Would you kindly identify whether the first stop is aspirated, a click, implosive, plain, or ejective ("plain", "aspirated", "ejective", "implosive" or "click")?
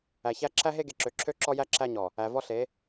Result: click